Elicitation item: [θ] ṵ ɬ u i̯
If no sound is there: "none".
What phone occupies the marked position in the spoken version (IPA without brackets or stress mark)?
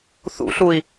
θ